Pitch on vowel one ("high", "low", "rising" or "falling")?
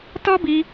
high